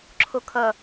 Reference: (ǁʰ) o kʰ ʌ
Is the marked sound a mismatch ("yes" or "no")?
no